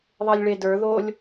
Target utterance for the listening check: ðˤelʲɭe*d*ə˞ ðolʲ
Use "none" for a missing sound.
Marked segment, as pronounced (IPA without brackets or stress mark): d